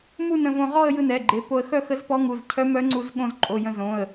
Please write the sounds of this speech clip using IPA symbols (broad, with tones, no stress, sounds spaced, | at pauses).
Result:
m u˥˧ n ə̃˧ v õ˧ ʁ ɔ˥˧ ə̯ j ɯ˧ n ɛ˩˧˩ ɡ͡ǃ e˩˧˩ p o˧ ə̯ x œ˥˧ x ə˧˥ z p ɔ˧˥ ŋ u˩˧˩ z cʰ œ˧˥ m œ˧˥ ŋ͡ǀ u˧ z ɠ õ˧ z ǃʼ o˩˧˩ j ə̃˧ z õ˩˧˩ ə̯